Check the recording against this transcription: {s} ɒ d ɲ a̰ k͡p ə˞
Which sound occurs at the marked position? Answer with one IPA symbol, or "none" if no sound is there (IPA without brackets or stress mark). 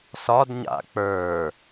s